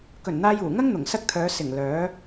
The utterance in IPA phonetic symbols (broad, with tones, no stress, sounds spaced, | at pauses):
k ɵ˨˩ n n̪ aː˧ j uː˨˩ ŋ ɐ˥ ŋ n̪ ʊ˨˩ ŋ s ɐ˥ k̚ t̪ʰ œː˨˧ s ɪ˨˩ ŋ l œː˨˥